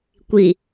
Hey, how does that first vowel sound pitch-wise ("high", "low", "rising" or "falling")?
low